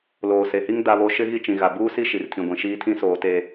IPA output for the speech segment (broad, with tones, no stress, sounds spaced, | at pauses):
l oː˨ s e˨ h i˦ ŋ d a˦ β o˦ ʃ ɪ˦ ɣ i˦ t͡ʃ ĩ˨ ɣ a˨ b uː˦ s i˦ ʃ i˨ r tʰ ĩ˨ ɡʷ ĩ˨ ʃ iː˦ tʰ ĩ˦ s oː˨ t e˨